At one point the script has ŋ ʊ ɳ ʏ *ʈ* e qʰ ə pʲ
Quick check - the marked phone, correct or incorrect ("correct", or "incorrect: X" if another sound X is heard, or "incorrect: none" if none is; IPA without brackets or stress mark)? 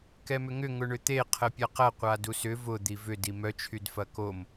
incorrect: t̪